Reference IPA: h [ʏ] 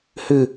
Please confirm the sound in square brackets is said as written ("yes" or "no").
yes